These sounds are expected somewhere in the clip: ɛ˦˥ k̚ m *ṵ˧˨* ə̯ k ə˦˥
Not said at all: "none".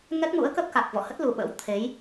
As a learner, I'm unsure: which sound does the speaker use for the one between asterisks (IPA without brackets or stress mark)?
ṵ˧˥